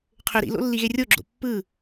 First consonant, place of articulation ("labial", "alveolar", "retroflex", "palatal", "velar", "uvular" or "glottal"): uvular